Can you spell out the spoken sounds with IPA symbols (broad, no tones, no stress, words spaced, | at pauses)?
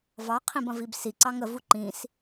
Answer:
vɑqʰĩb ɐ̃vibsiǀɑŋ əvu ǃĩs